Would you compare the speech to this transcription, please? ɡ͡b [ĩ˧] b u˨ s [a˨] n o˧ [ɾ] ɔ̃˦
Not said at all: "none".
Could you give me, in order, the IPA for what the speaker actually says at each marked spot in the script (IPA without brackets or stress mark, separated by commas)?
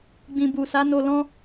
ĩ˨, a˨˦, l